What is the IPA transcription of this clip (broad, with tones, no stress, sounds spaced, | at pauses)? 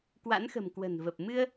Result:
k w a̰˧˥ n x ə̤˨˩ m k w ə̤˨˩ n v ə˨˩ p̚ m ɨ˧ ə̯